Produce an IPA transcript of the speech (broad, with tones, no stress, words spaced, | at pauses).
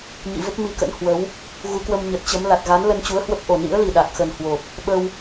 ɲḭ˧˨və˦˥p̚ mi˧kə̰˧˥n hwə˨˦w | ɣu˨˦kwə˧mɲə˨˩t̚ t͡ɕə˨˦m la˨˩t̚ɣa˨˦nlə˧n t͡ɕu˨˦ə̯hwə˦˥p̚ʔo˨˩ nḭ˧˥ə̯li˨˩ ɗa˨˩k̚xə˨˩nhwo˨˩p̚ | ɓə˧w